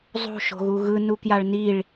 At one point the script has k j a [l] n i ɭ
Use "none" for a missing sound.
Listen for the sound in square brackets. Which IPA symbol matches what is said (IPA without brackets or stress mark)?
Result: ɭ